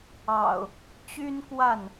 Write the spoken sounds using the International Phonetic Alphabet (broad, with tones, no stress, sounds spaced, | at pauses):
ɑ̰˨˩ ʊ̯ | t͡ɕ y˦ n k w a˥˨ n